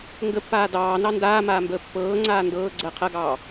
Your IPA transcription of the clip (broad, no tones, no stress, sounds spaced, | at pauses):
ŋ ɡ ə pː aː d ɑː n ɑ n d aː m aː m b əː pː ɤː ŋ͡ǀ aː n d ɤː ɡ͡ǀ əː qʰ ɐ ɡ ɑː